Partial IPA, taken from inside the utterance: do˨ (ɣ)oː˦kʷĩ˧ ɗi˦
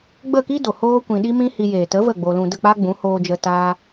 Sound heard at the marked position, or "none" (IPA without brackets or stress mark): h